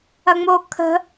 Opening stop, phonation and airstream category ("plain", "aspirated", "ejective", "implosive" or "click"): aspirated